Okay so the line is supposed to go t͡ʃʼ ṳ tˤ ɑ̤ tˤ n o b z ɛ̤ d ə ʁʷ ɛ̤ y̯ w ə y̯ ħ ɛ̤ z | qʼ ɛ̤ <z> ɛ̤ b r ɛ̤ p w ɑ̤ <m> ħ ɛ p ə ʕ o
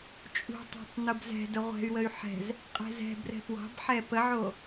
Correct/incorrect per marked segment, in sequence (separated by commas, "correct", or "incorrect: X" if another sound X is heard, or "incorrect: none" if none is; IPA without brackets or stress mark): correct, incorrect: b